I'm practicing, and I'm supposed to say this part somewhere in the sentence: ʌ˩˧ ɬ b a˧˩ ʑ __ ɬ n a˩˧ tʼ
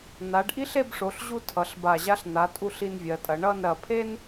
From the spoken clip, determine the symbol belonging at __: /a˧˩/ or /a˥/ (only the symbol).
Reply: a˥